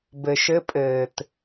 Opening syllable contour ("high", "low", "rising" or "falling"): low